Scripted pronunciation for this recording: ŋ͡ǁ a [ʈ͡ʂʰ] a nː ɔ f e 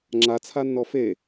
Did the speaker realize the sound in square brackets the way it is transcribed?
no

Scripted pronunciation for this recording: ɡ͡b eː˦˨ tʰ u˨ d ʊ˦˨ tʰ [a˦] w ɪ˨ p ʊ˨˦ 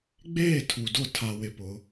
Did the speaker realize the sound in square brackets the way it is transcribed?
no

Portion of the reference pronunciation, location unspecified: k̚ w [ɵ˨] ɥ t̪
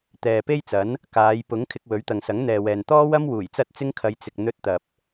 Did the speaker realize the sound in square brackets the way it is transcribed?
no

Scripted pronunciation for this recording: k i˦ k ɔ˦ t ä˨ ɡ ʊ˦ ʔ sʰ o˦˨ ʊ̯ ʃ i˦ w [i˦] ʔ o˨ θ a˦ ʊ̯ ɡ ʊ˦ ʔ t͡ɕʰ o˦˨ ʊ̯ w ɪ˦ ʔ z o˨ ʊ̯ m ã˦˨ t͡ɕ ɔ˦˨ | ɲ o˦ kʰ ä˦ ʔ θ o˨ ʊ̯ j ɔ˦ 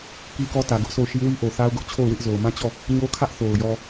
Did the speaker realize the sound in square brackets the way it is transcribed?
yes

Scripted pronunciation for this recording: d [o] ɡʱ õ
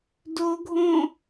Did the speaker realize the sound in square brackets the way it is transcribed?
yes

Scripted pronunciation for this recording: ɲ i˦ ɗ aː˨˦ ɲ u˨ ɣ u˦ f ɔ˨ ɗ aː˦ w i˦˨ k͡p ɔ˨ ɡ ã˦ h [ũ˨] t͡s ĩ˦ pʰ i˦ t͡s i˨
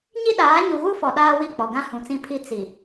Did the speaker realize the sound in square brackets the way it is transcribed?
yes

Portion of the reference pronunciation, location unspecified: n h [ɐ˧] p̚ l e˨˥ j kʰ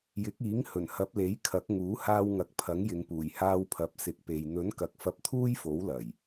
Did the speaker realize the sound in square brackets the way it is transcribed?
no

